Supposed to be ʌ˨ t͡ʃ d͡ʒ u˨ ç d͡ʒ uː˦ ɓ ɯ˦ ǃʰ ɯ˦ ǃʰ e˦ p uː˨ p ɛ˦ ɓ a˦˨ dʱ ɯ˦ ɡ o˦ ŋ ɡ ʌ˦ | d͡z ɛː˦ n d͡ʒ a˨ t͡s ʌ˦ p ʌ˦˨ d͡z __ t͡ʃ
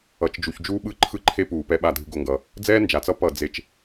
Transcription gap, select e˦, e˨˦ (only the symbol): e˦